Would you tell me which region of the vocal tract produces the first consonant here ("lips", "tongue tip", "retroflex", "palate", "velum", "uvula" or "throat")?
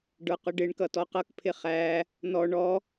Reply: retroflex